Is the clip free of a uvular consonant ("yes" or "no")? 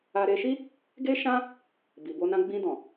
yes